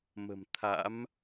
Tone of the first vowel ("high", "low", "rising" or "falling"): low